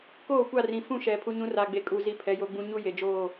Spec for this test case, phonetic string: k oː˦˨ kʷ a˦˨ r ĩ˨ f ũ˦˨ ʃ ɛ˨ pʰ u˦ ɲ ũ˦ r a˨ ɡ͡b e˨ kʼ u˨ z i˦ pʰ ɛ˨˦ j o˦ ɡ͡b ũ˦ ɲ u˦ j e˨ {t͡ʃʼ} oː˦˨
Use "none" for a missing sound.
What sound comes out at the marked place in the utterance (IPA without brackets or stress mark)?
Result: d͡ʒ